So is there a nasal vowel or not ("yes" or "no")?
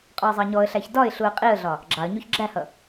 no